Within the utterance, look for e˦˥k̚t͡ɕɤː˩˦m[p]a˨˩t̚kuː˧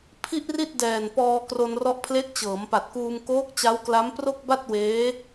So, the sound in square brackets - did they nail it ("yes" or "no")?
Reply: yes